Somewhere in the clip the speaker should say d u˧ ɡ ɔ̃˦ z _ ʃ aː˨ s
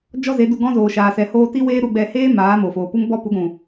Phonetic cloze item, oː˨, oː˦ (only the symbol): oː˨